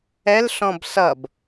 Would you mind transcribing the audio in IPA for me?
ɛlɬɔ̃b sʌb

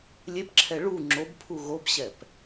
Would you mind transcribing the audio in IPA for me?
lʲepǁʰɛ ɭu ŋ͡ǁobpʰu ɣobɕɛp

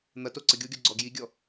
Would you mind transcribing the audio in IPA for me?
n̪ɐto ǀəɡʲoɡʲɔ ɡ͡ǀɔɡjiɡʲɔ

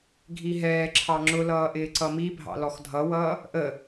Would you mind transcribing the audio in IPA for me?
ɡʱiɦɛːǁʰɑ ŋ͡ǁʊlʌː ʔɪːǀʌmibʱɑ̰ lɔxdʱʌwʌː | ʔə

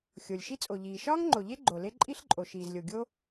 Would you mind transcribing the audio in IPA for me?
xʲo˩lʲ ʃi˥t͡sʼo˩ʎiː˩ ʃɒː˥ŋŋ͡ǃo˩ʎe˥ ɡ͡ǃo˩le˥ ǃʼi˥ɬǃʼo˩ ʃiː˩zlʲo˩ ɡʲo˥

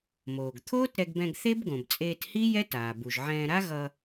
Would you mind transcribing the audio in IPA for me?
moː˩ɡt̪ʰoː˥tɾɛ˧ɡbɛ̃˧ɡ θe˥bɡõ˩bt͡sʼeː˧thi˥ jɛ˥taː˩ bu˩ʒ ʕɛ̃ː˧ɾa˥ɣʌ˧

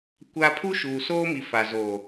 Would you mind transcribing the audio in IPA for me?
kʷa˦ pʰu˦ʃuː˨ soː˦mi˨ fa˨ zo˨

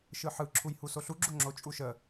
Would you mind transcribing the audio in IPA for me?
ʃɯħɯ ǁʰujhusoɬu ɡ͡ǁoŋ͡ǁo t͡ʃʼuʃə

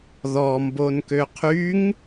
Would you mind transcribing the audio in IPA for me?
ðɔmbonkø qʰyŋ

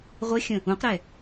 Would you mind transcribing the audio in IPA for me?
ʁʷɘxʲə̃ | ũqɾɛ

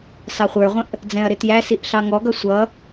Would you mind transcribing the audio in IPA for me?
sɑχʷə˞ʁʷə̃ʔ | d͡zɛ̃ɐ̯ɾɪtjæsiʔ ɬɑŋɔɡʌ sʷʌ

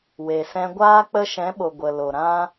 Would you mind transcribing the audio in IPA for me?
we˨sɛ̃˧ɡʷaː˦ k͡pə˧ʃɛ̃˨˦ɓo˨ ɡʷə˨lo˨ ɾã˧

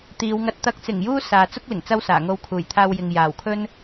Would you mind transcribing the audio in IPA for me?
t̪iː˨˧wŋɐ˧t̚ t̪ɐ˨˥k̚t͡sɪ˨˩ŋjuː˧ saː˨ t͡sʊ˥k̚lɪ˨˩ŋ t͡sɐ˥wsaː˨˩ŋo˧w kʰuː˨˩jt̪ʰaː˧wjɪ˨ŋ jaː˨˩wkʰɵ˥n

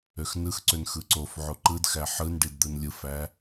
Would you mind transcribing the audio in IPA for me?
øxnɯxǀøn xɯǀofʕo ǃɯdxæ ħɯn ɖidd̪ɯnlʲɯfæ

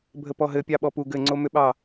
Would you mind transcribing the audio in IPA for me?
bʱəpɔɦɘ pʲɑɓɔpu ɡɘŋ͡ǀomʏɓɑ

